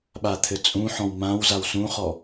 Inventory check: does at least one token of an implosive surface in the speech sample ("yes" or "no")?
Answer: yes